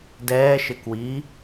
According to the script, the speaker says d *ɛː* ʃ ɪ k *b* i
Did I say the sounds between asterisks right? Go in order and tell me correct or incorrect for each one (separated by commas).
correct, incorrect